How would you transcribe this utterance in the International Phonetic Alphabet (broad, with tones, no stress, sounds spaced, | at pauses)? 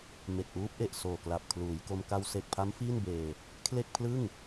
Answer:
m e˨˩ k̚ ʔ uː˦˥ p̚ ʔ e˨˩ ʔ s oː˨˩ k l a˨˩ p̚ kʰ l uː˩˦ j k o˧ m k a˧ w s e˨˩ k̚ pʰ a˦˥ m f iː˥˩ n b eː˧ | kʰ l e˥˩ k̚ pʰ l ɯ˥˩ ŋ